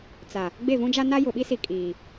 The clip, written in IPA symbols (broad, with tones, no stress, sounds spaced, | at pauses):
t͡s a˨ | ɡ͡b e˦˨ v ũ˦ d͡ʒ a˦ n a˦ j ʊ˨ ɓ i˦ s i˨ kʼ iː˨